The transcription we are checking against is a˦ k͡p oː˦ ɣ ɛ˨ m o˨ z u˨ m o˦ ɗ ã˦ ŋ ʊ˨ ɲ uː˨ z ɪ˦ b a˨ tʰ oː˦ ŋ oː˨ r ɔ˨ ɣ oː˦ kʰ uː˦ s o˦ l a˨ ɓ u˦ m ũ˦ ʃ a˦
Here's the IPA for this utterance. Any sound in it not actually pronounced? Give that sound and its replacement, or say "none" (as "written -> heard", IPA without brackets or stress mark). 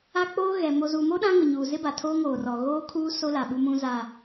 ʃ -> z